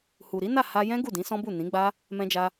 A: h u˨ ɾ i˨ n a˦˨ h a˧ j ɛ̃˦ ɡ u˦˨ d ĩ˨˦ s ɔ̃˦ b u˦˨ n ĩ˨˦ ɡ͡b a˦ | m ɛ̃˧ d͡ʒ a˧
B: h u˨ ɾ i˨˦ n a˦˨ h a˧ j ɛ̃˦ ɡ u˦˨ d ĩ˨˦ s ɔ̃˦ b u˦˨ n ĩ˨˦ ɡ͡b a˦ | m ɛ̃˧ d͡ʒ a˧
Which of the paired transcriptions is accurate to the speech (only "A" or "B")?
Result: B